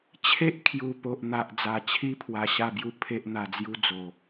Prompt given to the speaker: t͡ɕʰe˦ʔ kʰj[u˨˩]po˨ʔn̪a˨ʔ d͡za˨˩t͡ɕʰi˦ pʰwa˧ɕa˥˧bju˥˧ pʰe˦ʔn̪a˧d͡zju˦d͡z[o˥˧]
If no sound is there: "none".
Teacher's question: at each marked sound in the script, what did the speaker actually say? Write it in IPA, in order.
u˨˩, o˨˩

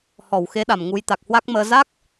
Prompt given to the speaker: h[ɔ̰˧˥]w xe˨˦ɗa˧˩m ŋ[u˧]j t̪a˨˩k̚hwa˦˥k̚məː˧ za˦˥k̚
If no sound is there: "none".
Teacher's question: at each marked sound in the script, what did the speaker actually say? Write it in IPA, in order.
ɔ˧˩, u˨˦

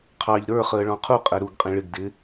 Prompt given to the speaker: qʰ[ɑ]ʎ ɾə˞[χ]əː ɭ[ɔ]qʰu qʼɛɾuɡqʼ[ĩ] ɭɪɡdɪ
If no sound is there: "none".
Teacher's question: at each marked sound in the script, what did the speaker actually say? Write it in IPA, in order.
ɑ, χ, ɔ̃, ĩ

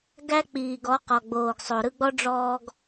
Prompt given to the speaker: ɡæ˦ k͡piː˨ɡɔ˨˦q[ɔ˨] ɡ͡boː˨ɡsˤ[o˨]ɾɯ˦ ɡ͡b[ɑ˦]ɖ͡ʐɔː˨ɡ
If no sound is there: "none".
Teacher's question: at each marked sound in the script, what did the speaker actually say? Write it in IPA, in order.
ɔ˨, o˨, ɔ˦

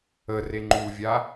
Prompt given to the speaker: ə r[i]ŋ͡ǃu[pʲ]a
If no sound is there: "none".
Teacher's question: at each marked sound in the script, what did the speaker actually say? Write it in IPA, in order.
e, vʲ

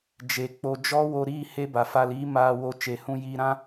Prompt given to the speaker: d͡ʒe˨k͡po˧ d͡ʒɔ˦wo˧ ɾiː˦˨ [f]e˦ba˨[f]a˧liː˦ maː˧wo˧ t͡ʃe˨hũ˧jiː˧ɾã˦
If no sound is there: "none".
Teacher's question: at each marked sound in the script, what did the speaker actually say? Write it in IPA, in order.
h, f

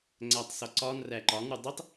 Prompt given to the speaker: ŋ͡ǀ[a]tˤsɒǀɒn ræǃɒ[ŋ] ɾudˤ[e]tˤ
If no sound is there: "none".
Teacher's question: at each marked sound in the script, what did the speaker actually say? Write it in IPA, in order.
æ, ŋ, i

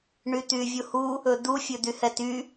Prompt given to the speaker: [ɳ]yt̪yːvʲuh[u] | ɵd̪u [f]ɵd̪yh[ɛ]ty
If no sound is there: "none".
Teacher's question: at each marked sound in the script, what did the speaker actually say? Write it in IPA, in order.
ɳ, u, fʲ, ɛ

